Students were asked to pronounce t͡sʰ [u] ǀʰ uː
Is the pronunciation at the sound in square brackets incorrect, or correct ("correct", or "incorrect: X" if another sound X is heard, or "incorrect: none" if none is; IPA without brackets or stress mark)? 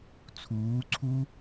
incorrect: uː